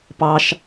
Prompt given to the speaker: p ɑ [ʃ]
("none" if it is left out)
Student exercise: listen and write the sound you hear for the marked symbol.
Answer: ʃ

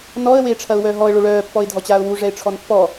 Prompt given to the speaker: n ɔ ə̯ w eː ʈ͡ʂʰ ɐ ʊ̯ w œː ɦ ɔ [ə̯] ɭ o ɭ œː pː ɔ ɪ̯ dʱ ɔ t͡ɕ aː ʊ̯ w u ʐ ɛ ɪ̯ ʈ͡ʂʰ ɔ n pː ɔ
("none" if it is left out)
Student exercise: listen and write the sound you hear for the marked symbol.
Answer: ə̯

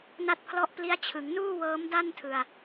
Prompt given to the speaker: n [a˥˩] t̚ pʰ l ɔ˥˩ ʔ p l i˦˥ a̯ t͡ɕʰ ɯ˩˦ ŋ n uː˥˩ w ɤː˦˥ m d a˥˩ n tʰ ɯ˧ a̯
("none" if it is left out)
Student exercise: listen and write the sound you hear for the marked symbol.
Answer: a˥˩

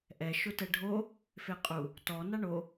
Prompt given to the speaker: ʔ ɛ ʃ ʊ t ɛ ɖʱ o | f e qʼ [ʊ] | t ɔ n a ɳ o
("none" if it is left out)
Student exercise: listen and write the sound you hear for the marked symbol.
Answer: u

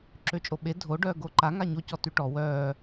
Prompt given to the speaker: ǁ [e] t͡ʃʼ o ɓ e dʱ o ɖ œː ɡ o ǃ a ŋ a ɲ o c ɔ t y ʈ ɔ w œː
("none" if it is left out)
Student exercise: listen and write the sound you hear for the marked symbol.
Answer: ø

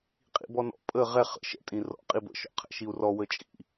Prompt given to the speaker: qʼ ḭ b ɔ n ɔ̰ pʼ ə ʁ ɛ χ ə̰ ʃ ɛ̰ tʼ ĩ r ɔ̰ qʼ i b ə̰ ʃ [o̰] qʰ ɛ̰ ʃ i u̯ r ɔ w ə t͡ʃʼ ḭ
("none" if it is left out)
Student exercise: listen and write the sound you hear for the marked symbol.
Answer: ɔ̰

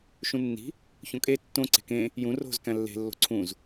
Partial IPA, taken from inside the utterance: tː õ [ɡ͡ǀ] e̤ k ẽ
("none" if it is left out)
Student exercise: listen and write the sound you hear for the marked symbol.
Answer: ǀ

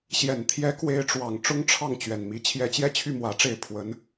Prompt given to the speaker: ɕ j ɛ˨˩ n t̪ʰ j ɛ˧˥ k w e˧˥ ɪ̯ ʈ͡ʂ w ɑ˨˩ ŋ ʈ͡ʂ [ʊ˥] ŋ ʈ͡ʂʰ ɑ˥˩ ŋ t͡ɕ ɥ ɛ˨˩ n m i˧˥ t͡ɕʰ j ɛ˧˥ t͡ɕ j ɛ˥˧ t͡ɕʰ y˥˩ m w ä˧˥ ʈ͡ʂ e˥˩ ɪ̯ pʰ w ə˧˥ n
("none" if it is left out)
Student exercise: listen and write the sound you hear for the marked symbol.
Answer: ʊ˥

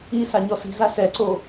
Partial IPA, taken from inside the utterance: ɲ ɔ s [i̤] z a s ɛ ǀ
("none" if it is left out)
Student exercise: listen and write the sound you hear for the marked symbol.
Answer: i̤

